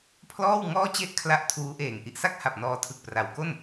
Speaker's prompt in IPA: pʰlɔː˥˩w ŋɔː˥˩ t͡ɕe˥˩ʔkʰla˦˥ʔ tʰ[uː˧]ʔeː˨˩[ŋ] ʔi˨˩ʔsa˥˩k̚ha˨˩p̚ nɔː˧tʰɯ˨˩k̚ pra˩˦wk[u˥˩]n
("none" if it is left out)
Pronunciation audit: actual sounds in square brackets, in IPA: uː˦˥, ŋ, o˥˩

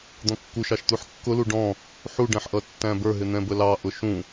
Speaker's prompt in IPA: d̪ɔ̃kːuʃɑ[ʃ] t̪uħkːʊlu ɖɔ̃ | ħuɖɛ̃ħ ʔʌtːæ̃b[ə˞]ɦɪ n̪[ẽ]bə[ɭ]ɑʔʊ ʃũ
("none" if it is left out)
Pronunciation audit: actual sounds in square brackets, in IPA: ʃ, ə˞, ɛ̃, l

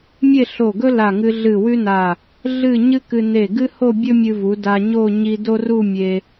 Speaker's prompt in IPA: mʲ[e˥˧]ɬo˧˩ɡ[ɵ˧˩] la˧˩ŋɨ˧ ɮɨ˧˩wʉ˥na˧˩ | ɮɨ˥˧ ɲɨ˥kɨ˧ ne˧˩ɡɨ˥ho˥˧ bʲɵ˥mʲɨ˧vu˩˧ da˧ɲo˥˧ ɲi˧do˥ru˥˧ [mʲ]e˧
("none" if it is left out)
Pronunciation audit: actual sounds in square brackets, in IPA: e˥˧, ɵ˥, mʲ

